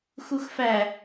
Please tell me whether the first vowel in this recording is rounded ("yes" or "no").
yes